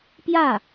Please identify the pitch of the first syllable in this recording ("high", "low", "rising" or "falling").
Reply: falling